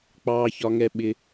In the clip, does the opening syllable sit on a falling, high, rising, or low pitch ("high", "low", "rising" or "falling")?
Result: high